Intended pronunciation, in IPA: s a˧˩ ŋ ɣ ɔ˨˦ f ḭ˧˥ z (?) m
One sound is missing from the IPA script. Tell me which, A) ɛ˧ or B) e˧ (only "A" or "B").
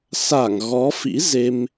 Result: B